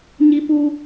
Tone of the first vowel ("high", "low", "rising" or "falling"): high